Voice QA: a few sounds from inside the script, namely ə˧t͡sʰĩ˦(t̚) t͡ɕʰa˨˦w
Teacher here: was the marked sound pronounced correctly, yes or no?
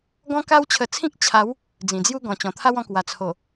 no